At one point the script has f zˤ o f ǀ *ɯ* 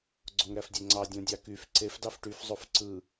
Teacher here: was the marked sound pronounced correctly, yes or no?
yes